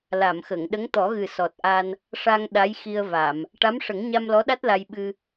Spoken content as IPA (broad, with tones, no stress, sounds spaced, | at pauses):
l a˨˩˨ m x ə˨˩˨ ŋ ɗ ə˧˥ ŋ t̪ ɔ˨˩˦ ɣ ɨ˨˩ s ɔ˨˩ t̚ ʔ a˧ n | ʂ a˧ ŋ ɗ a˧˥ j x i˧ ə̯ v a˨˩˨ m | ʈ a˧˥ m ʂ ə˨˩˦ ŋ ɲ a˧ m l ɔ˧˥ ɗ a˦˥ t̚ l a˧ j ɓ ɨ˧